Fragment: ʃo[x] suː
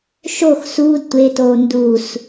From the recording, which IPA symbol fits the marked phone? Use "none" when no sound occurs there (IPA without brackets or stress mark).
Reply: x